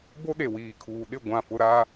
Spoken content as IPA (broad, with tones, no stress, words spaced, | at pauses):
bo˦ɗe˨wiː˨kʰuː˨ ɗɪ˦˨ ɡʷã˦˨fʊ˦ ɾa˦